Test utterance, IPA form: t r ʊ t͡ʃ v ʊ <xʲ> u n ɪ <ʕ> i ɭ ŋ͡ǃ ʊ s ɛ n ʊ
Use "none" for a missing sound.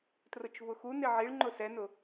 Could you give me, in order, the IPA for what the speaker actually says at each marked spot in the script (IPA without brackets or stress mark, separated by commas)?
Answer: x, ʕ